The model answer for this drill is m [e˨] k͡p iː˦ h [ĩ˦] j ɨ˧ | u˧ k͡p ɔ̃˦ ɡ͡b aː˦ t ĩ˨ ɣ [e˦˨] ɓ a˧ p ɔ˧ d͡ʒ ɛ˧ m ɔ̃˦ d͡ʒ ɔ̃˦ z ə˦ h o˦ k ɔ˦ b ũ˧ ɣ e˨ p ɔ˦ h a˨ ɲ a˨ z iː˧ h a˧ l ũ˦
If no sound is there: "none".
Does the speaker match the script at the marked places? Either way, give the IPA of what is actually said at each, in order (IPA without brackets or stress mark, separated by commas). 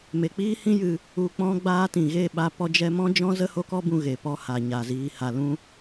e˨, ĩ˦, e˦˨